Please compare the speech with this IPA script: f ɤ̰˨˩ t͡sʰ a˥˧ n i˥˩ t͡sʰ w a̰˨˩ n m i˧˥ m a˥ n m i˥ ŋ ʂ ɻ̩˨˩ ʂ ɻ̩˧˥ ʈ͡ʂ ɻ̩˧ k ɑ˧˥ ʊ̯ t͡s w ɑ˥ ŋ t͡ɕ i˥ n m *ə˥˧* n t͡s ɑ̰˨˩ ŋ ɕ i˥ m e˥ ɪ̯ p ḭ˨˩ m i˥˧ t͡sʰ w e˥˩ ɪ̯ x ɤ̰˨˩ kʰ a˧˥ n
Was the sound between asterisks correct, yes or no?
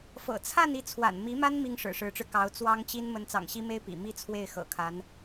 no